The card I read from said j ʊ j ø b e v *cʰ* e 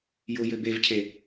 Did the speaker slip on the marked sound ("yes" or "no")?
no